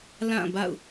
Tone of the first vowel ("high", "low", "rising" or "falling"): falling